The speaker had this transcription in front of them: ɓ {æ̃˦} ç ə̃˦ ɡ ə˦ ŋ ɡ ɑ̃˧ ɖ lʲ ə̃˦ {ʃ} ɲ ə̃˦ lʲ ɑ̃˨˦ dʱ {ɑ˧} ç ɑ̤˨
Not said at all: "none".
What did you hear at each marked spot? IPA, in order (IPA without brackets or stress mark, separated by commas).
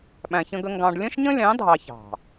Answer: æ̃˧, ʃ, ɑ˧